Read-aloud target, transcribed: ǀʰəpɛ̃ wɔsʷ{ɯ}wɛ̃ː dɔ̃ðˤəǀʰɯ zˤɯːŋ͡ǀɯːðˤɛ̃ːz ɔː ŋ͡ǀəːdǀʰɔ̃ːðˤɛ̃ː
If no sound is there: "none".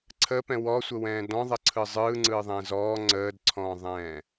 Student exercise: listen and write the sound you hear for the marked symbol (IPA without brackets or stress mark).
ə